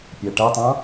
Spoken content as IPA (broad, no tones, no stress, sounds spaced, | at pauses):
pʲ æ ʈ æ tˤ ɑ̃